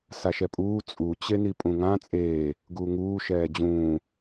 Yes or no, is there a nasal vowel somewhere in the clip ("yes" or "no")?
yes